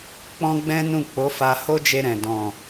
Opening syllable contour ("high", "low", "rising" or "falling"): high